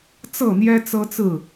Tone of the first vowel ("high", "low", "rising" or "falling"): falling